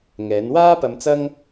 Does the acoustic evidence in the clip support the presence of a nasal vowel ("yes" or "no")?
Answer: no